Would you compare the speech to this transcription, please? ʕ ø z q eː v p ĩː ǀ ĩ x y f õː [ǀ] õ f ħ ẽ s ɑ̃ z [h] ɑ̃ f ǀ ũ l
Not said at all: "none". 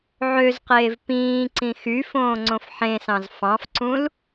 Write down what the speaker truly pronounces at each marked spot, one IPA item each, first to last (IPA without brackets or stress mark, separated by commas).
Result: ŋ͡ǀ, f